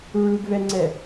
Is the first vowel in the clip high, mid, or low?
high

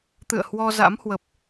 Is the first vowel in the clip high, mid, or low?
high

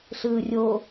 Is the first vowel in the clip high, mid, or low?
high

